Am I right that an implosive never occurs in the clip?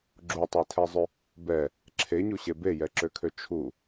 yes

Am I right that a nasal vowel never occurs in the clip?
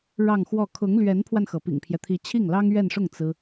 yes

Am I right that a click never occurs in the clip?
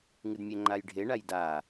no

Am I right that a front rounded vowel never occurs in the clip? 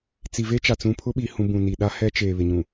yes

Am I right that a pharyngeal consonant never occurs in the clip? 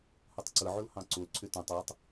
no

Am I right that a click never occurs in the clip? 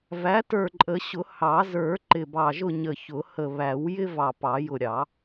no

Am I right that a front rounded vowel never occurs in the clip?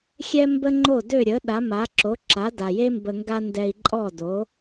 no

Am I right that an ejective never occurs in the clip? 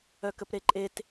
no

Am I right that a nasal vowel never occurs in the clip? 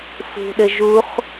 yes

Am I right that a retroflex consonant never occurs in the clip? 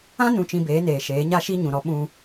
yes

